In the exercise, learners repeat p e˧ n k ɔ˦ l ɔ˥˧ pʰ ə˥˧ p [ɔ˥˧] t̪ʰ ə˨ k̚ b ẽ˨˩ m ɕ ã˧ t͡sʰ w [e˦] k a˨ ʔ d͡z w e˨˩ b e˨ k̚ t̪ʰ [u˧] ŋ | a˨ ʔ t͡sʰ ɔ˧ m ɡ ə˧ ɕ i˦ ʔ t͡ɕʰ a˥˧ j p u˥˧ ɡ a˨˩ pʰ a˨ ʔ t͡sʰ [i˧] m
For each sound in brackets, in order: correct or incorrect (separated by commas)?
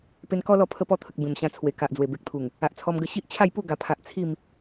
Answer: correct, incorrect, incorrect, incorrect